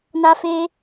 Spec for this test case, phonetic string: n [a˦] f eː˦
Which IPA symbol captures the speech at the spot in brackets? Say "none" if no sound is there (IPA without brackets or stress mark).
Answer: a˦